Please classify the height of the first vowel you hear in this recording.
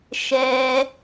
mid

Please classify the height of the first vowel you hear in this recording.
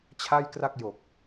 low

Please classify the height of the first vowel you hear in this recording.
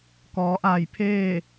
mid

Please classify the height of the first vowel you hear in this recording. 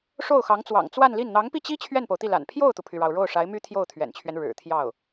mid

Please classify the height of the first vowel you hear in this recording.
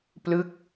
high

